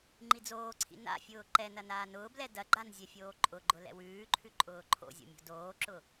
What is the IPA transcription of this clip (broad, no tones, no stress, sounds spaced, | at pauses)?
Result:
ŋ͡ǃ i d͡z oː ǀʰ ḭ n a̰ fʲ ʊː ǃ ɛ n ɐ n aː n ʊː b l ɛ d ɐ ɡ͡ǃ a n zʲ ɛ fʲ oː ǃʼ ʊ ɡ͡ǃ ʊ l ɛ̰ w ʉː ǃʰ ʉ ǃʼ ʊː ǃʰ o̰ zʲ o̰ mʲ o̤ d oː ǁ ʊ